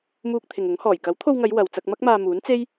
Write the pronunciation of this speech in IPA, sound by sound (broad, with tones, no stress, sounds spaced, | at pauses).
m uː˧ k̚ t̪ʰ ɪ˨ ŋ ʊ˨˥ ŋ h ɔː˨˩ j k ɐ˨˥ w t̪ʰ o˧ w ŋ ɐ˨˧ j w ɐ˨ w t͡s ɐ˧ k̚ m ɐ˥ k̚ m aː˧ m uː˨˥ n t͡s e˥ j